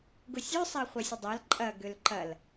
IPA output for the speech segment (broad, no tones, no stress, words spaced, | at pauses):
ɡʊsʲøsˤa χʷɛsʲʊdˤal ǃʼɐ ɡølǃɐl